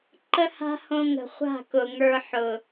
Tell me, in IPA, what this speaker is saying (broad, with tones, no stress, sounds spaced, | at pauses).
ǃ ə˦ h a̤˦ h õ˧ ŋ ə̤˨ χʷ a̤˦˨ k ʊ˨ ŋ ə˞˧ ħ ʊ˨